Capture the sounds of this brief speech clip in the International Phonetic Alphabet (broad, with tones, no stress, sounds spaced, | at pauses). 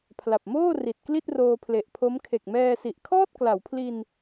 pʰ l a˨˩ p̚ m oː˥˩ r i˨˩ t̚ k l i˥˩ t̚ r oː˧ pʰ l e˨˩ ʔ pʰ o˦˥ m kʰ e˨˩ k̚ m ɛː˧ s i˨˩ ʔ kʰ ɔː˥˩ t̚ k l a˩˦ w pʰ l i˧ n